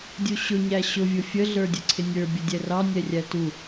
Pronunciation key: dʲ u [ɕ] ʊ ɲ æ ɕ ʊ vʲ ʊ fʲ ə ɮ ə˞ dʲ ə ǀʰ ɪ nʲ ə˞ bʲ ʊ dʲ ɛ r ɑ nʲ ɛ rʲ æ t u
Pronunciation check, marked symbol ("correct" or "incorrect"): correct